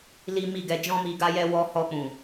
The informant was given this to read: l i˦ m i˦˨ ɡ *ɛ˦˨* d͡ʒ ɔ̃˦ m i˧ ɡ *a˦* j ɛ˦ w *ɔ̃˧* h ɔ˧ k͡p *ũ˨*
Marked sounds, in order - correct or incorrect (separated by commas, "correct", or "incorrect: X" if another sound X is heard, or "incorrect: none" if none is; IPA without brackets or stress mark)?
incorrect: ɛ˧, correct, incorrect: ɔ˧, correct